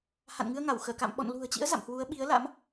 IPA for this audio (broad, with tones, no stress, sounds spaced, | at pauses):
h a̰˧˨ n ŋ ɨ˧ ə̯ ŋ a˧˩ w x əː˧˩ k a̰˧˨ m ɓ ɔ̰˧˨ n l ṳ˨˩ ə̯ t͡ɕ ḭ˧˥ ə̯ z a̰˧˨ m h w u˨˦ ə̯ ɓ i˨˦ ə̯ l a̰˧˥ m